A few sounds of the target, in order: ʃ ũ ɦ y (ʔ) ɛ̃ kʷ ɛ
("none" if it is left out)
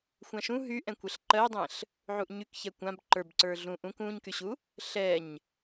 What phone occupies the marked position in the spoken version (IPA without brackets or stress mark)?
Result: ʔ